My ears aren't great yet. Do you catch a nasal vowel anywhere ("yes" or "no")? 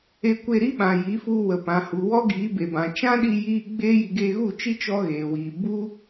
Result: yes